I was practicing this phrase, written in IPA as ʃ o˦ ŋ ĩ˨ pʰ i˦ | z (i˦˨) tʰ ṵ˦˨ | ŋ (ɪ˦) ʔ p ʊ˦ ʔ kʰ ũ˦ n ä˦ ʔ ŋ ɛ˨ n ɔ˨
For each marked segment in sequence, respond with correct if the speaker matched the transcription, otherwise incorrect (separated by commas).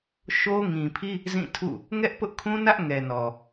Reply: incorrect, incorrect